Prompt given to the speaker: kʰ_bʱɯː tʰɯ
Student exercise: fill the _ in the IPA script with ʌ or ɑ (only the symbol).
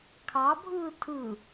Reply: ɑ